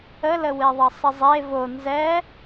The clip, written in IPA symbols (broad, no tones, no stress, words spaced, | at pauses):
ələwe ðˤʌsˤəzˤe vo nzɛ